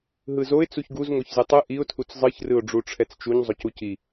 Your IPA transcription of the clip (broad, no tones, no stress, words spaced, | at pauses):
ɦɯzoɪ̯ t͡suçɡuz ŋoçzɯtˤɯ ʔiʊ̯ tʰut͡szˤɯç rɯʊ̯ɖ͡ʐuʈ͡ʂʰɛt͡st͡ʃuɲ zˤocuci